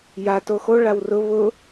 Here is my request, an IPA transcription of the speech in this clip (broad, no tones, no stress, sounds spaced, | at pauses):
j a t o x o ɭ a w r ʊ β ʊ